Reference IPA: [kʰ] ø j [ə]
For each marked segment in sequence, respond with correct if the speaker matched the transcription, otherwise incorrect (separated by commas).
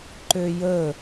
incorrect, correct